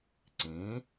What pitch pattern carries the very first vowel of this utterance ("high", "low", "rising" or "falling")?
rising